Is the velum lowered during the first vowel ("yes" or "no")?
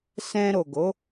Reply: yes